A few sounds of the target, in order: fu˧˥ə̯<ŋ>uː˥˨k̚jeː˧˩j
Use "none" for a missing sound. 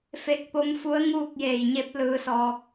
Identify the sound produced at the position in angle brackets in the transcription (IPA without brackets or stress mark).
ŋ